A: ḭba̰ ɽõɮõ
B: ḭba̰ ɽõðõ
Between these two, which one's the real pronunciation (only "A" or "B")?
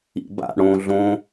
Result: A